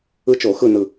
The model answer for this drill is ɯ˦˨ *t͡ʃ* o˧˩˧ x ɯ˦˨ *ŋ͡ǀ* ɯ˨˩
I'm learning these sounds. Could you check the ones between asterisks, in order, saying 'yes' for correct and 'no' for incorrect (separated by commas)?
yes, no